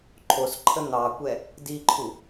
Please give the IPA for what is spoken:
ǃʰos ǃʰən̪ɑkʷɛ | diǃʰu

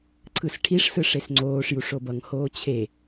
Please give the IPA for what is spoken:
ǀʰɯsʈʰiʂ sɯʂesŋ͡ǀoːʂ juʂobʌŋ hoːt͡ɕʰe

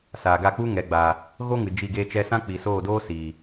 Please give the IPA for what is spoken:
saː˨ɡa˦˨ k͡pu˦ ŋɛ˨ɡ͡baː˨ | ɣo˦ŋɨ˨ d͡ʒi˦˨ɡe˦t͡ʃɛ˦ sã˦k͡pi˨soː˦˨doː˦ siː˨

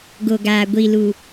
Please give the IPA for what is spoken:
ɡo˨ɡaː˨ ɡʷi˨lu˨

